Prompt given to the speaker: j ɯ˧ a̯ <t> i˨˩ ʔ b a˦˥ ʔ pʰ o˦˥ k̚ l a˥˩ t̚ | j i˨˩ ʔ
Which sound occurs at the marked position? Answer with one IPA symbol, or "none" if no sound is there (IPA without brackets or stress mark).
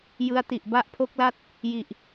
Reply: t